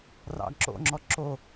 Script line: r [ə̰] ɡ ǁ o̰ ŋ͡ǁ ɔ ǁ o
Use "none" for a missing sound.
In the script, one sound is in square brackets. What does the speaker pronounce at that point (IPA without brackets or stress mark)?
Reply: ɑ̰